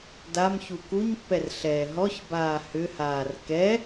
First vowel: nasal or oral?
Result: oral